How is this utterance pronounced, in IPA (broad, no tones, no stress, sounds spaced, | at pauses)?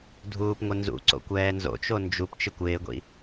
dʱ uː p ŋʷ ɪ n z ṵ ǀ o̰ kʷ ɛː n z o̰ t͡ʃ o n d͡ʒ u p t͡ʃ ɪ kʷ ɪː ɡʷ ḭ